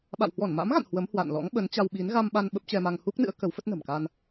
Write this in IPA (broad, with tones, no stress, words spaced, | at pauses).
ɓa̰˧˨whwɔ˧˩nma̰˧˥mɣa̰˧˨n hwə˨˦mhwa̰˧˨nlɔ̰˧˥ŋ ɓə˨˦nt͡ɕa˧wɓi˨˦n ɣa˧mɓa˧n ɓə˦˥p̚t͡ɕɛ˧ma˧ŋ hu˦˥k̚nɨ̰˧˥ə̯ kə˨˦wfə˦˥t̚nə̤˨˩mka˧n